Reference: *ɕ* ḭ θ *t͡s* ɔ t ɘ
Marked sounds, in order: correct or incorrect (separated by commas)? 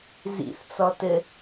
incorrect, correct